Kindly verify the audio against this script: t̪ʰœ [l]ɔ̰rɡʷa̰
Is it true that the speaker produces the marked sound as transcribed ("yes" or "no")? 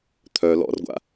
yes